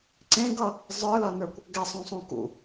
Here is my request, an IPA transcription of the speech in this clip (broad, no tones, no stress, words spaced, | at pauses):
ǀẽɡʌ | zˤə˞lʌnə˞kʷ | ɡɛsˤũsˤũ kṵ